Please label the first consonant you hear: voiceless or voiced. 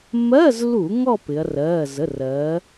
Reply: voiced